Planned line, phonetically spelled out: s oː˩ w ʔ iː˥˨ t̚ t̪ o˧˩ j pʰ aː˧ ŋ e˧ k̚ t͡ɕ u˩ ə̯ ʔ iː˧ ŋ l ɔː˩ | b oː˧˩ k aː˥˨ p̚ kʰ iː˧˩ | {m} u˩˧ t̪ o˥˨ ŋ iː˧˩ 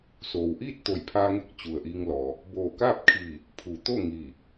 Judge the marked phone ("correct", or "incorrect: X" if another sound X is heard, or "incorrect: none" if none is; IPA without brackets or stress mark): incorrect: pʰ